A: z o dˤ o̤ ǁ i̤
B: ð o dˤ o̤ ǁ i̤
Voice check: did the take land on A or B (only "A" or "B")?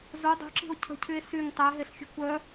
A